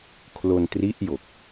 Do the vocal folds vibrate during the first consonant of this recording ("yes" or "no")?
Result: no